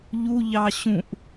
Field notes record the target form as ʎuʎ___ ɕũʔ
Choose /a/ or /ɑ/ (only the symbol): ɑ